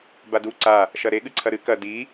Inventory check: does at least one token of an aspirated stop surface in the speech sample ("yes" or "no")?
yes